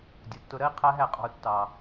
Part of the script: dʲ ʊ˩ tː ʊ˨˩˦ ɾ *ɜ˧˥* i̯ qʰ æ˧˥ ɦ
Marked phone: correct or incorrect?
correct